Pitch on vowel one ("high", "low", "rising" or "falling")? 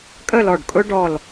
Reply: falling